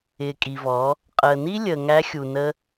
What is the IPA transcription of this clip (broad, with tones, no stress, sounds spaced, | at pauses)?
ɪː˨ kʼ i˨ v ɔ˨˦ | qʼ əː˨ n i˦ lʲ əː˨ ŋ æ˧ xʲ u˨ n ə˧